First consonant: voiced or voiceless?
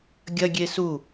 voiced